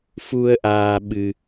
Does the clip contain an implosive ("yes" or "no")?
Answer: yes